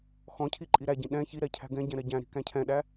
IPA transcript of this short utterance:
x ɔ̃ cʰ i ǃʼ i ɾ æ ɟ ĩ ɗ ɛ̃ ç i ɾ ɛ cʰ æ̤ ɡ ɛ̃ ɟ ɛ̃ ɾ ɛ ɟ æ̃ ɾ i̤ k æ̃ cʰ ɛ̃ ɗ æ

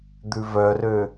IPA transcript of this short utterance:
d̪ ʉ v œ r ø

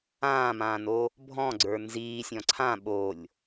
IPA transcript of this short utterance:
ãː m ãː n o | bʱ ɔ̃ ɡ͡ǀ ə˞ n z iː sʲ ɔ̃ ǀʰ ã ɓ o lʲ

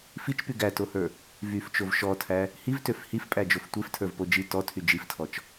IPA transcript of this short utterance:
f i t͡ʃ p y ɡ æ t o h ə˞ | v y f t͡ʃ o v ʃ ɔ tʰ æ | h i v t ø f h i f pʼ æ d͡ʒ o f tʷ e f tʰ ə˞ v p o d͡ʒ i t ɔ tʰ y d͡ʒ i f tʰ ɔ t͡ʃ

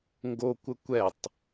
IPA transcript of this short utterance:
ŋ ɡ o kʷ ə kʷ ɛ tˤ

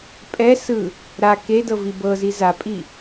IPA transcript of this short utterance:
pʼ ɛ s ɯ | ɾ a k e d ɤ v i b ɤ z i z a pʼ i

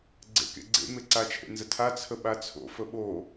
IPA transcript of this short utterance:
ɡ͡ǀ ḛ k ḛ ɡ͡ǀ ḛ m e ǀ a t͡ʃʰ ḛ n z ə tʰ a t͡sʰ ə ɓ a t͡sʰ o̰ f ə ɓ o

